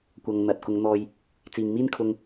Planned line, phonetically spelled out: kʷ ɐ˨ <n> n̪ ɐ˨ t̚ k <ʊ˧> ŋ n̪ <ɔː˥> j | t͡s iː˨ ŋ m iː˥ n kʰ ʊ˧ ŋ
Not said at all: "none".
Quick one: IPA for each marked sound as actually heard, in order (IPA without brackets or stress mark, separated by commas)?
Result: ŋ, ʊ˨˧, ɔː˧